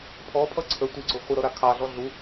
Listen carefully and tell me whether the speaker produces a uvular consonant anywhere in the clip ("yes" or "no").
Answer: yes